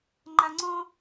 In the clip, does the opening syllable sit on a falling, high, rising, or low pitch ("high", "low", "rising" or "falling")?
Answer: low